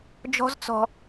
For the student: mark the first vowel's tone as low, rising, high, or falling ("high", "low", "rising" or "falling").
high